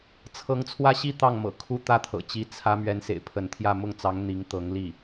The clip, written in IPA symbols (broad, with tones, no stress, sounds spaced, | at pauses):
t͡sʰ ɤ˧˥ ŋ t͡sʰ w ä˥ ɕ i˥˧ t̪ ɑ˥˩ ŋ m ɤ̰˨˩ kʰ u˥ t̪ ä˥ t̪ʰ ɤ̰˨˩ t͡ɕ i˧˥ t͡sʰ ä˥ m ɥ ɛ˧˥ n s ḛ˨˩ ɪ̯ pʰ ə˧˥ n t̪ʰ j ä˥˧ m ʊ˥˩ ŋ t͡s ɑ˧˥ ŋ n̪ i˧˥ ŋ t̪ ɤ˧˥ ŋ l i˥˩